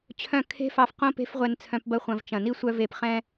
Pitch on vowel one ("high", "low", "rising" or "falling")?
falling